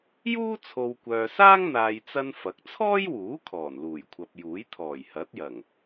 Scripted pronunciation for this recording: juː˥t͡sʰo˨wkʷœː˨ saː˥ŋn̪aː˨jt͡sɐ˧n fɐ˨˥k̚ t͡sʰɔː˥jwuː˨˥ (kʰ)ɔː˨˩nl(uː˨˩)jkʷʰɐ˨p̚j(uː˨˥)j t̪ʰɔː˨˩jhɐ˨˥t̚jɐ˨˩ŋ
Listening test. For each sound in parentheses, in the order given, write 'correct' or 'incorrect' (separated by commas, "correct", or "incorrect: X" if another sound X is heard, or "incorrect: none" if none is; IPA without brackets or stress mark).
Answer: correct, correct, correct